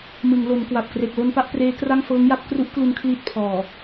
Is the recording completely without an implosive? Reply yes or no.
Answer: yes